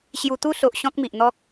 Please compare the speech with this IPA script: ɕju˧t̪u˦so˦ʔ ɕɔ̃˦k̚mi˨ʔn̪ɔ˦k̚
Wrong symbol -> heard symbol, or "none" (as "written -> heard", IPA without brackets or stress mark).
o˦ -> o˨